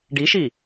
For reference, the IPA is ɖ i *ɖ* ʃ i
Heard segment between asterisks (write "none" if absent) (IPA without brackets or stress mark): none